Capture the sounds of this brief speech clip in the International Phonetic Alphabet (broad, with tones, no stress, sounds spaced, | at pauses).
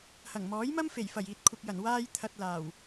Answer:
h ɐ˨˩ ŋ m ɔː˨˥ j m ɐ˥ m f e˨˩ j f ɐ˨˩ j iː˨ t̚ kʷʰ ɪ˨ k̚ j ɐ˨˩ n w aː˧ j t̪ʰ ɐ˨ t̚ l aː˨˩ w